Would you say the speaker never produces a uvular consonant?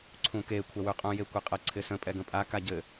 no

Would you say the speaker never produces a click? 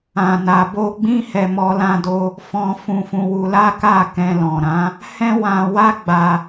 yes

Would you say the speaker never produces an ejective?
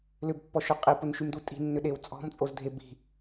no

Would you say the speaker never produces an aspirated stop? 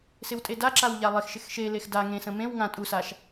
yes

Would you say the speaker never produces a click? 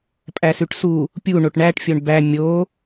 yes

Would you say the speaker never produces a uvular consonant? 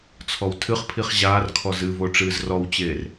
no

